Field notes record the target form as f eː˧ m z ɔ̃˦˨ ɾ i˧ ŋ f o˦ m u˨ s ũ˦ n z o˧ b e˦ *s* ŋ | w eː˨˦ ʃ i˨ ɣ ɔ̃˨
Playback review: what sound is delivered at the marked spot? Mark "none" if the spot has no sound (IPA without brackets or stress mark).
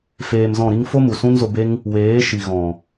none